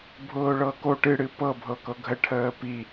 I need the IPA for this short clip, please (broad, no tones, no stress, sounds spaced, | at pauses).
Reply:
bʱ ʊː ɭ ɤ k o ʈ ɨ ɽ ɨ p ɤ bʱ ɤ k ɤ ɡʱ ə ʈʰ əː p i